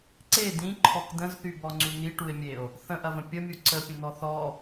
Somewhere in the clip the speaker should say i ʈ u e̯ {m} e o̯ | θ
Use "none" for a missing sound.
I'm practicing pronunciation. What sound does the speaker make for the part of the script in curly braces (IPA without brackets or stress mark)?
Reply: mʲ